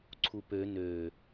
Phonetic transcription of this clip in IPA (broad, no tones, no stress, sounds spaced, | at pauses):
ǀʰ u p ø n ø